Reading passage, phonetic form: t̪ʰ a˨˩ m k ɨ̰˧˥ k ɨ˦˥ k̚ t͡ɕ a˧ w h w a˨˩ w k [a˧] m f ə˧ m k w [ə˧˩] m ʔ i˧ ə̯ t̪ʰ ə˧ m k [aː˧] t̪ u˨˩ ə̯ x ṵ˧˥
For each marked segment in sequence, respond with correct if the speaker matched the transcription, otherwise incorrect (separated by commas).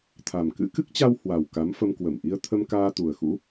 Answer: incorrect, correct, correct